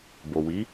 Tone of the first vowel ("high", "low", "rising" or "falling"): low